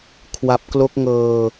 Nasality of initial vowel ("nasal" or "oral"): oral